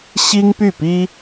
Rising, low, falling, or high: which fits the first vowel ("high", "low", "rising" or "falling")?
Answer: high